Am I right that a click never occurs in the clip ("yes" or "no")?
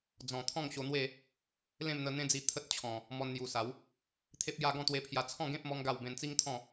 yes